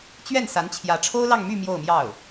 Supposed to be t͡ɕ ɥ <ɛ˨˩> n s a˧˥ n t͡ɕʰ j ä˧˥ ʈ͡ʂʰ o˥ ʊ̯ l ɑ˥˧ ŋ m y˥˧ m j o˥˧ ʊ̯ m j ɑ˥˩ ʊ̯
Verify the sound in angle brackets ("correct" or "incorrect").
incorrect